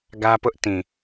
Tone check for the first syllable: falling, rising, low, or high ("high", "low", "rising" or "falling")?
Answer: high